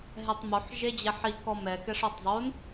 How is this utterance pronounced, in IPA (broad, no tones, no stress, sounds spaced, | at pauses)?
ɦ ɛ tˤ m o ħ ʒ e d͡ʑ ɛ ħ i k ɔ m ɛ k ɛ ʂ ɔ tˤ zˤ o n